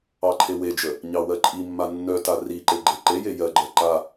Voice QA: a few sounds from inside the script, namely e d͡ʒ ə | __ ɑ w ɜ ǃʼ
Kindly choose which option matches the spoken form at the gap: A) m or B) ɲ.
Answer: B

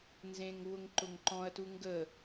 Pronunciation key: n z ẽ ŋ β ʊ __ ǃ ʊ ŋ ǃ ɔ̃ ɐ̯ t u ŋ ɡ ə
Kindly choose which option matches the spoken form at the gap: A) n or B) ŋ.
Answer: B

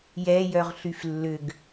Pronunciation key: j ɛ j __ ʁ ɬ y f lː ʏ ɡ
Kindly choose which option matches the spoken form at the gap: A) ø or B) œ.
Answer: B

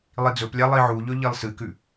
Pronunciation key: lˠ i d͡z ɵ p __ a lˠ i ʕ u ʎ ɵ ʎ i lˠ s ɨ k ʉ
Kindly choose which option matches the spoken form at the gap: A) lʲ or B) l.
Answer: A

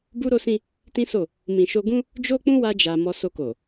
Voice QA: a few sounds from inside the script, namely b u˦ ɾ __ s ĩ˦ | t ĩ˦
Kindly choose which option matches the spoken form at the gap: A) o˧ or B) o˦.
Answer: B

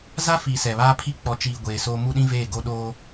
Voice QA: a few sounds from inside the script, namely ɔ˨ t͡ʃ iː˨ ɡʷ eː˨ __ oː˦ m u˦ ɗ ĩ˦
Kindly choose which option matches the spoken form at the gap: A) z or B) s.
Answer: B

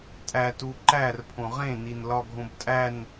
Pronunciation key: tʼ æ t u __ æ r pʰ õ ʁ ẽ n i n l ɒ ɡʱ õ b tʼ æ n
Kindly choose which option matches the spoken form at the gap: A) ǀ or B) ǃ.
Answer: B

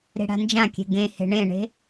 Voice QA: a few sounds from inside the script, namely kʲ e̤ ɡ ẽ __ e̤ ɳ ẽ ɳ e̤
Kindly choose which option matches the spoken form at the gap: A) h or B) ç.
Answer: A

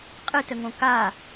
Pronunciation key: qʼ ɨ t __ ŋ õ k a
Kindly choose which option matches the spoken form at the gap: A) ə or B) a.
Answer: A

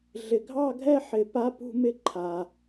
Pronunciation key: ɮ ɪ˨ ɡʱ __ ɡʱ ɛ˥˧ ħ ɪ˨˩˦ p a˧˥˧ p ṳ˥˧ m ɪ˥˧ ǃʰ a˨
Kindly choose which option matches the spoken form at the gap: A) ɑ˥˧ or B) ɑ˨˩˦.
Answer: A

